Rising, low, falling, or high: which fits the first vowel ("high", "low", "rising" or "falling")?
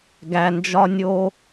low